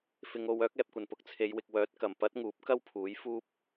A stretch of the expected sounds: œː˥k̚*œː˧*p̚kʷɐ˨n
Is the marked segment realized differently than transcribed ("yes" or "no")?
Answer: yes